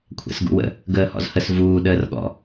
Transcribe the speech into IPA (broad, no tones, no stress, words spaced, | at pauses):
kʷʰɛ̰sɡṵwə̰ | ɡəːhɔ̰zhəs vuː ɗəːrɠɔ̰